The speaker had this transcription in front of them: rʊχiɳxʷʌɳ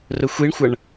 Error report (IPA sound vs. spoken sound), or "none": χ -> xʷ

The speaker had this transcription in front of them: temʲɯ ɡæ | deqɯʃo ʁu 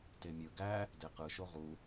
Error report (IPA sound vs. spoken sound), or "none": none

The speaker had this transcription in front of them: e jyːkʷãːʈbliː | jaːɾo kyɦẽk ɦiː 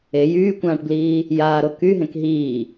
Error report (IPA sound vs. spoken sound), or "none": none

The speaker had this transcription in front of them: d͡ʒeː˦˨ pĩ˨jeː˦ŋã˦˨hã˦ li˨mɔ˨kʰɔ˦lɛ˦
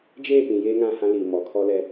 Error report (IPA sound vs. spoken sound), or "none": none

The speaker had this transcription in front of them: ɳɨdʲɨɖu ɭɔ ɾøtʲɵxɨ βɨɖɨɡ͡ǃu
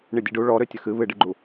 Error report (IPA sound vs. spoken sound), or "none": ɵ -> ə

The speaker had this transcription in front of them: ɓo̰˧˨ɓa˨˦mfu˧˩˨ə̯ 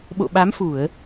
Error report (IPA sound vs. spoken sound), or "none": none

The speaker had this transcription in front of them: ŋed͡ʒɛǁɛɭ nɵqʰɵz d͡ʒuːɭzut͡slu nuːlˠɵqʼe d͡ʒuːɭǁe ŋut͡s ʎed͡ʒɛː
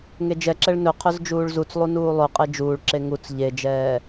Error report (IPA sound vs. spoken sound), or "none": l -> lˠ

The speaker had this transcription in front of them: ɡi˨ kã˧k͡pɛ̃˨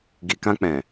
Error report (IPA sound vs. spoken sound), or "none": none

